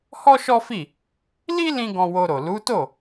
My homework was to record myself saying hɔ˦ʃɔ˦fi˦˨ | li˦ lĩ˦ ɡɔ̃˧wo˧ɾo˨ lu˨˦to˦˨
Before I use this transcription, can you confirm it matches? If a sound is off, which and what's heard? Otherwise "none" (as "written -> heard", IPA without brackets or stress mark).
none